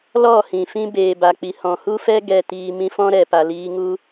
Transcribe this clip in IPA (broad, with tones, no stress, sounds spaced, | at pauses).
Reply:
l ɔ˦˨ h ĩ˨ f ĩ˦ b eː˨ b a˨ k͡p i˨ h ɔ̃˨ h u˦ f ɛ˦ ɡ ɛ˧ t iː˧ m ĩ˦ f ɔ̃˦ ɾ ɛ˨ p a˨ l iː˦ ŋ u˦